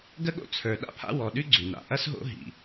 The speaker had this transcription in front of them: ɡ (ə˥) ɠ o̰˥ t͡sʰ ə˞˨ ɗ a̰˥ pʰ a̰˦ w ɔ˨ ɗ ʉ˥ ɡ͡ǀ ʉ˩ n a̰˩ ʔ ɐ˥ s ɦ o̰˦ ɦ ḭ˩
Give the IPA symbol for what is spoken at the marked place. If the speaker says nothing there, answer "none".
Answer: ə˥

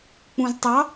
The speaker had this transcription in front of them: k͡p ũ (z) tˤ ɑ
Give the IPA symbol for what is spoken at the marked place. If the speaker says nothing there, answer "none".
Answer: z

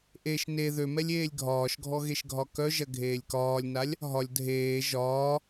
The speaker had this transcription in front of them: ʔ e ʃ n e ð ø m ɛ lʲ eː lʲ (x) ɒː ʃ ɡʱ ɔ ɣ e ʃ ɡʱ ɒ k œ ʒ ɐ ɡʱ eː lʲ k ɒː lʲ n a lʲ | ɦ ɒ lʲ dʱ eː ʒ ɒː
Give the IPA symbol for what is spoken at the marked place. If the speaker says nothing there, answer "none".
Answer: ɡʱ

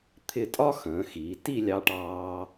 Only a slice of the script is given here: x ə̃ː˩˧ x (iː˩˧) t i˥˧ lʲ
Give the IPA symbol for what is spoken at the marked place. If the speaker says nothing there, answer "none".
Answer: iː˩˧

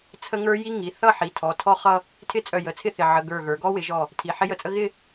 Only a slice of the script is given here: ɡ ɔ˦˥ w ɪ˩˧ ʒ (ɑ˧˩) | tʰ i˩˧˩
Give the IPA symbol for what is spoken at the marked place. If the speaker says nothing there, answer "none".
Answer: ɔ˧˩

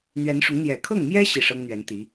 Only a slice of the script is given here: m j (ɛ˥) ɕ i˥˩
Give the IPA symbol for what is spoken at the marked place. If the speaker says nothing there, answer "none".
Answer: ɛ˥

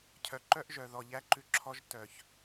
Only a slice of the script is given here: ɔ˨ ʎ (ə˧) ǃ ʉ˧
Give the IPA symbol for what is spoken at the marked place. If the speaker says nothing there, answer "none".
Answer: æ˧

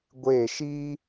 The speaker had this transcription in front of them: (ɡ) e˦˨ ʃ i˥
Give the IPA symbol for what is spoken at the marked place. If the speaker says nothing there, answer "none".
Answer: ɡʷ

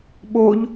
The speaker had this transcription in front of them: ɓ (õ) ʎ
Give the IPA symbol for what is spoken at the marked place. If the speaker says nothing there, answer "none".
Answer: o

